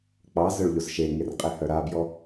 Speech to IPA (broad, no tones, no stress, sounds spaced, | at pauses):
k͡p ɑ z œ ɭ ʎ o z ʃ e ŋ e r qʼ e h œ ɾ a b j ɔ